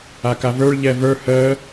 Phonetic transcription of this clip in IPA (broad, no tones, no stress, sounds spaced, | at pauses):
a k a v ə˞ ɭ ʎ ɛ v ə˞ h əː